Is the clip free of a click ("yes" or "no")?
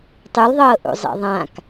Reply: yes